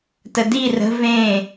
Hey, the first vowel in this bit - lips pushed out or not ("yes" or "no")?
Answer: no